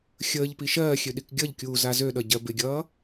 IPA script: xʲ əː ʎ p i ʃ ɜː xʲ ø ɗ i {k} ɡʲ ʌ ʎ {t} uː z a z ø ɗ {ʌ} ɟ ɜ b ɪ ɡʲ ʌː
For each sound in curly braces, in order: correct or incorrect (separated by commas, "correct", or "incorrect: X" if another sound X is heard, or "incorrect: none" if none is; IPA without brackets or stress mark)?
correct, incorrect: kʲ, correct